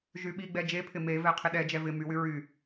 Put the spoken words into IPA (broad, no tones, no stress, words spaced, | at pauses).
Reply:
ʒyɓiɡ͡bɛ d͡ʒepʰɪ mevɛ qʰɪɗɛd͡ʒɛ vɪ mywy ɹy